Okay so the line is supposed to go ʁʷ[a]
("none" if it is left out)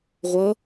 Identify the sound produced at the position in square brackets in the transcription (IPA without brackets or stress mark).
ʌ